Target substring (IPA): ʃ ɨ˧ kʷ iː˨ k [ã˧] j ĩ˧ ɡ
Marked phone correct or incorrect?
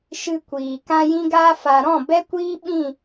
correct